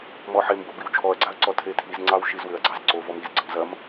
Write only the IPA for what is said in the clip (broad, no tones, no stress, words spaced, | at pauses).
mɔħembo biwt͡ʃʰɔɐ̯ɡ͡ǀaɐ̯ ǀɔtʰetʰizŋ͡ǀɑw ʃizwʏɐ̯ɡ͡ǀɑz ǀo vɔmizɡ͡ǀəm zɐm